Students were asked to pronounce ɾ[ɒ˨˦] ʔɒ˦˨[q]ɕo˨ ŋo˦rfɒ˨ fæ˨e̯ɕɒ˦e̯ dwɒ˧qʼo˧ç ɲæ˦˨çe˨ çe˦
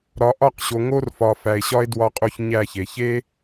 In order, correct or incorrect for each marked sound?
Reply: correct, correct

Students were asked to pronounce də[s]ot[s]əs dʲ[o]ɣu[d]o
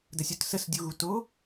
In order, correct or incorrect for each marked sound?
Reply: incorrect, correct, incorrect, incorrect

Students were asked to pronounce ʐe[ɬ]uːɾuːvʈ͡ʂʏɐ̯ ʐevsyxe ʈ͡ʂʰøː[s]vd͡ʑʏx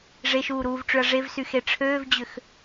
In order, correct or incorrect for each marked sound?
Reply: incorrect, incorrect

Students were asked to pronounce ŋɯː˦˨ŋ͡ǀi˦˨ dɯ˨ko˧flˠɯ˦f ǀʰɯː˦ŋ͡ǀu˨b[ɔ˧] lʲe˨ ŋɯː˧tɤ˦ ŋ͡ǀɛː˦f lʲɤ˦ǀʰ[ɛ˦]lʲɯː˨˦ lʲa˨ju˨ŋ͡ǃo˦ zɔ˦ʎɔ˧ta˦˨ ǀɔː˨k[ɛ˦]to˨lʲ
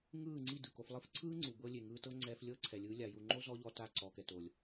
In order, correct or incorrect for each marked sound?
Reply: incorrect, incorrect, incorrect

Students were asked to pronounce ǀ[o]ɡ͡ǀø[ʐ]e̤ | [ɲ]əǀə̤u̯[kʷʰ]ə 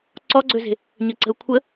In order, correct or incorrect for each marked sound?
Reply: incorrect, incorrect, correct, correct

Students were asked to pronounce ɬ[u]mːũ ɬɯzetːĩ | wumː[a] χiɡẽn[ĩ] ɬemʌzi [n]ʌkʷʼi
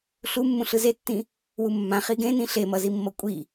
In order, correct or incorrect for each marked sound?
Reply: correct, incorrect, correct, incorrect

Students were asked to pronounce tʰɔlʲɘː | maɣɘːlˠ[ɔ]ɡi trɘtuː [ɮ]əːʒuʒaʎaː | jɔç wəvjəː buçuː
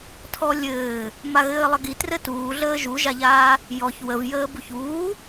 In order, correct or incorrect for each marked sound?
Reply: incorrect, correct

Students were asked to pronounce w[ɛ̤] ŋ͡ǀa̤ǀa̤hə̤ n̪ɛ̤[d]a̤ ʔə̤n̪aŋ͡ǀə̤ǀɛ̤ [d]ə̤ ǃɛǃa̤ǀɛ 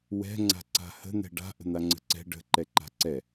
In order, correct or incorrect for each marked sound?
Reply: correct, incorrect, incorrect

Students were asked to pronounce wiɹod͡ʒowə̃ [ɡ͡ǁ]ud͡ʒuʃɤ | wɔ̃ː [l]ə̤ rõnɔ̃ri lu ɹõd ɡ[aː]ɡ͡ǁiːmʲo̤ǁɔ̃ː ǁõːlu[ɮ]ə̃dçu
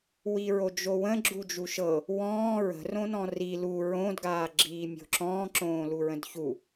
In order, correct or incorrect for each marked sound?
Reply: correct, incorrect, correct, incorrect

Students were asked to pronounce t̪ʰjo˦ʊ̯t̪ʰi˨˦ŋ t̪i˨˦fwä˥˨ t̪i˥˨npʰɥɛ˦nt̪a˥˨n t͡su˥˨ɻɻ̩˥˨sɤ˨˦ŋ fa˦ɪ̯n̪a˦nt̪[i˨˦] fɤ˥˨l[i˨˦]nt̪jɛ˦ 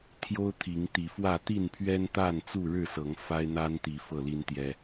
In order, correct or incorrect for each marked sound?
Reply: correct, incorrect

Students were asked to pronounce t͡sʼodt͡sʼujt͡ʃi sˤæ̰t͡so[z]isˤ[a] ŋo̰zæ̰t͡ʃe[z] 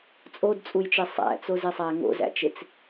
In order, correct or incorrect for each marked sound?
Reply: correct, incorrect, incorrect

